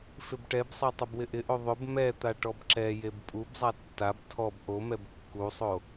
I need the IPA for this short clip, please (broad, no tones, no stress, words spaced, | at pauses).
fɪbʈɛbsˤɛ tˤʊbwɪʔɪʔo ðˤʊb mɛt̪a ʈɔbǁɛjeb pʼubzˤa tːab tʰɔb ʔomɛb kːusˤo